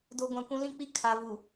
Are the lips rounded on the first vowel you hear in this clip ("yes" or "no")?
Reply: yes